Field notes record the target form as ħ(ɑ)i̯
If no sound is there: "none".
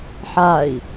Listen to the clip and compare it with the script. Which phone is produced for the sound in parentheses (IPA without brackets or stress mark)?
a